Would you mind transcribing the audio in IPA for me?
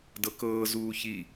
d ɤ k ɤː z uː ç i

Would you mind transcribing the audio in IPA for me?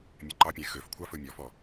mʲ ɛ ǃ ɑ pʲ æ̃ x ø f kʷʰ ɑ f ɵ mʲ ɔ f ɔ

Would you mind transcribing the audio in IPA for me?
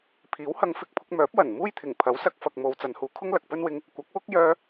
pʰ iː˨˥ w h ɐ˧ ŋ f ɪ˧ k̚ pʰ ʊ˧ k̚ m œː˨˥ p̚ w ɐ˨˩ n m uː˥ j t̪ʰ ɪ˨˩ ŋ pʰ ɐ˨˥ w s ɐ˧ k̚ f ɐ˨ k̚ m o˨˧ w t͡s ɐ˨˧ n h uː˨˧ kʰ ʊ˥ ŋ l ɐ˨ k̚ p ɵ˥ n w ɪ˧ ŋ | kʷ ɐ˨˥ k̚ w ʊ˥ k̚ j œː˧

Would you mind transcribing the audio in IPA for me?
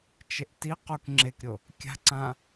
t͡ʃ e ʔ t i q u k ŋ͡ǁ e k ɾʲ o | kʲ a̤ ǀ ã

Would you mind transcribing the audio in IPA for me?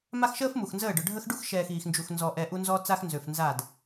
m a˦ x ʃ əː˦ f m u˨ x n z əː˦˨ ɖ œ˨ ɖʱ ə˦ x ɖ u˦ x ʃ ɛː˨ x iː˨ x n d͡ʒ u˨ x n z ɔ˨ ʔ ɛ˨ ʔ u˦ n z ɔ˦ t͡s a˦ x n z ø˨ f n z a˦˨ d

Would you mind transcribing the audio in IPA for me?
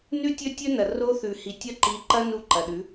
n ʉ˦ tʲ ɵ˦ tʲ ɵ˦ n ɐ˨ r o˦ θ ʉ˨ h i˨ tʲ ɐ˦ ǃ i˨˦ ǃ ɐ˦ n u˦˨ ǃ ɐ˨ ɗ ʉ˨˦

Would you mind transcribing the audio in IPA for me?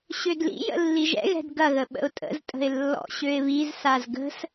ɕ ø d l ḭ j ə̰ lː i ʒ ɛ̰ ɣ ɛ̤ d ɡ ɐ ɣ ə ɓ ə̰ ʊ̯ tʼ ə̰ z tʼ ə̤ ɪ̯ lː ɔ̰ ɕ ø ɪ̯ β i z s a z ɡ ə̤ s

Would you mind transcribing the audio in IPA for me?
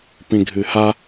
p ĩ ɡʱ ɨ h a

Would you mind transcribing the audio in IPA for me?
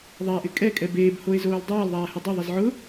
ðˤ a ʔ ɪ kʼ ɛ kʼ ɛ b eː b h o e̯ z oː l dˤ aː l ðˤ aː h ɪ dˤ ʊ ðˤ ɪ z ʕ ʊ

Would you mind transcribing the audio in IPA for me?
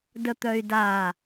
d ə t̪ œ y̯ d a

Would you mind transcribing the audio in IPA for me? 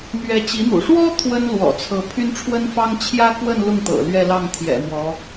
n̪ ɥ ɛ˧˥ t͡ɕ i˧˥ n̪ ṵ˨˩ ʂ w ɔ˥ t̪ʰ w ə˥ n l w ɔ̰˨˩ t͡sʰ ɤ˧˥ pʰ y˥ n ʈ͡ʂʰ w ə˥ n f ɑ˥ ŋ t͡ɕʰ j ä˥ k w ə˥˧ n l ʊ˥˩ ŋ t̪ ɤ̰˨˩ l ɥ ɛ˥˧ l ɑ˥˩ ŋ t̪ʰ j ɛ̰˨˩ m w ɔ˧˥

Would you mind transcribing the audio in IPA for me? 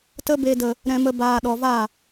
t ə˧ b e˨ d ə˨ | ɾ ɛ̃˨ m ə˨ b aː˨ ɗ ɔ˨ v a˦˨

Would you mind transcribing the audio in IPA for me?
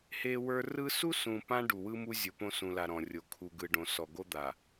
h e˦ w ə˞˦ r ɯ˦ s u˦ s ũ˨ p ã˦ ɖ u˨ w ɯ˦ m u˦ zʲ o˨ p õ˦ s ũ˨ l a˨ ɾ ɔ̃˨ rʲ o˨ kʰ u˨ ɡ ɯ˨ ɖ õ˨ s ɔ˨ ɡ o˦ d̪ a˨

